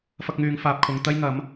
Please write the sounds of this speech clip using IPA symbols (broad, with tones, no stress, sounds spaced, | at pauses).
f ɐ˧ k̚ ŋ yː˨ ŋ f aː˨ p̚ kʰ ʊ˨ ŋ t̪ ɐ˥ j ŋ ɐ˨˥ m